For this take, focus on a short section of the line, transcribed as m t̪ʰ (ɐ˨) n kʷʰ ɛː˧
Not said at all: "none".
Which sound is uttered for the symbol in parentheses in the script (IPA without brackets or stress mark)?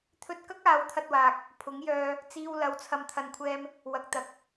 ɐ˨